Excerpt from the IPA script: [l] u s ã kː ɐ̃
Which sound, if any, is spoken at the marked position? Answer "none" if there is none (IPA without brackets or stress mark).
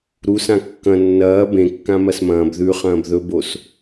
ɾ